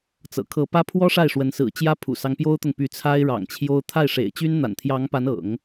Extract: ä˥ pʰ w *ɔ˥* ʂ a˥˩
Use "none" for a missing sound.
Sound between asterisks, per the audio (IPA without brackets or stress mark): ɔ˥